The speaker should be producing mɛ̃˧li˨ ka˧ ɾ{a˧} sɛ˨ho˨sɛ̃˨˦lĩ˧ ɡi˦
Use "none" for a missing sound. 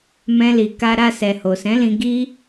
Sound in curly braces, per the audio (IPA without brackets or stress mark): a˧